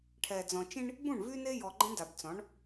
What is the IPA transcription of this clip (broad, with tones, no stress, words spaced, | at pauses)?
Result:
ʈʰɛ˨d͡zɔ̃˨t͡ʃĩ˦ɳ | bũ˦˨ɳvy˦ ne˦jɔ˨ɡ͡ǃə̃˦ɳ da˨bt͡sɔ̃˨˦ɳ